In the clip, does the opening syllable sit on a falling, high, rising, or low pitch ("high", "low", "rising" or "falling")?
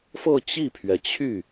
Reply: falling